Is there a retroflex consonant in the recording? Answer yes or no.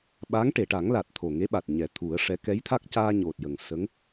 yes